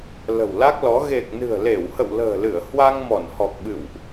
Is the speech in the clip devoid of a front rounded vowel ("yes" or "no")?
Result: yes